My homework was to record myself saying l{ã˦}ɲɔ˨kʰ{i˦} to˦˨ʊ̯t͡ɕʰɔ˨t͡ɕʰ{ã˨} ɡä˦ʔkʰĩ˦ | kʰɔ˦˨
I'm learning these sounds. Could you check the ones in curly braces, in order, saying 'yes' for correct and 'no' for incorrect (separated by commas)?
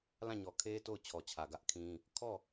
no, no, no